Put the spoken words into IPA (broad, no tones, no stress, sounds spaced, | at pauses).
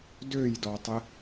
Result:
d ø j d ɔ tˤ ɪ